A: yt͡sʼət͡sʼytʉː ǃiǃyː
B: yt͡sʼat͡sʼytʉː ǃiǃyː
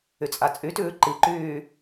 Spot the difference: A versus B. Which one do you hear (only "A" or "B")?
B